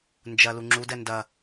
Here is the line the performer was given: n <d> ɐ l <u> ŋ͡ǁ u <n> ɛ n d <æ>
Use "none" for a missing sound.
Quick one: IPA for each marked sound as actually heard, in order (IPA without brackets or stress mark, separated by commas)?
d͡ʒ, u, d, ɐ